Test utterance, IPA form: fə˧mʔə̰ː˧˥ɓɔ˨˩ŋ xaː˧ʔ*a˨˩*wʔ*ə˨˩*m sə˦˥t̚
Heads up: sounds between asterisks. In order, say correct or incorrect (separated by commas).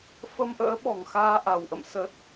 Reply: correct, incorrect